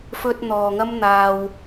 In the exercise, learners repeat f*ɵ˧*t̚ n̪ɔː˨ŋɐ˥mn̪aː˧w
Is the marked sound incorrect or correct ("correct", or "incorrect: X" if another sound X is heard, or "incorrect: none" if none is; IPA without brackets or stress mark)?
correct